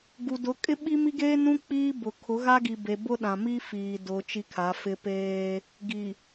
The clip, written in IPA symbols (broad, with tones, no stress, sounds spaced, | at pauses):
ɡ u˨ d ʊ˨˦ kʼ ɪ˦ ɓ i˦ m i˦ ɡ eː˦ n ũ˦ k͡p iː˦ b ʊ˨ kʰ ʊ˨˦ ɣ a˦ ɡ i˨ b e˨ b ʊ˦ ɗ ã˨ m i˦ f iː˨ d ʊ˨ t͡ʃ i˦ kʰ a˨˦ f ɪ˦ p eː˦ | ɡ i˨